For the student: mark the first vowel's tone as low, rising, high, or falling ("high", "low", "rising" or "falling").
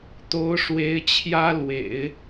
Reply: rising